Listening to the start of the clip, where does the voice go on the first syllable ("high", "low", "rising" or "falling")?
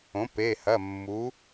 rising